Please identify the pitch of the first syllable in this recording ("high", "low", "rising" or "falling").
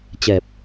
low